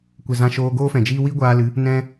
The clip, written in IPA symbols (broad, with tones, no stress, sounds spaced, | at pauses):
kʷ e˨ z ã˧ ʃ oː˧ ɡ oː˦ f ɛ̃˨ d͡ʒ iː˦ w i˦ ɡʷ aː˧ l ɨ˨˦ | n ɛ̃˦